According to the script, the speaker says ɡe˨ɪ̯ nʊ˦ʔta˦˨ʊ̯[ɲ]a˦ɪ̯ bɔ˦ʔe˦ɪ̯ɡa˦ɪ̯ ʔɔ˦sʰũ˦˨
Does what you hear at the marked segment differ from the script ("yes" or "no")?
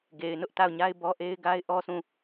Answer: no